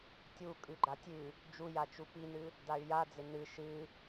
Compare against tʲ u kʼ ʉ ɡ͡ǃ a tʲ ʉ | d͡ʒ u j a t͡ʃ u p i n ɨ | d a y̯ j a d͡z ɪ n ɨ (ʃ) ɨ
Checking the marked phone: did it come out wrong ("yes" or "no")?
no